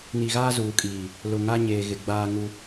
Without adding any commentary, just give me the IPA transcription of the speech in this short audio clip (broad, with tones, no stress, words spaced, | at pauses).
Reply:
ni˨ɣaː˦zuː˨kʼiː˨ | lʊ˨ŋa˦ ɲeː˨ɣɪ˨ɡ͡baː˦ ŋu˦